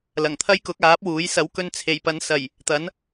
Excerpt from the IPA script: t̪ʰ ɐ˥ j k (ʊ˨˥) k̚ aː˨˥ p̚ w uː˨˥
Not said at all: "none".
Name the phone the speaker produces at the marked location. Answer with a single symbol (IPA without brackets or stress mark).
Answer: ʊ˨˥